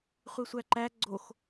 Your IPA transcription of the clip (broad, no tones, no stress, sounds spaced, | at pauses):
χʷ i sʷ æ ǃ æ ɡ͡ǀ o x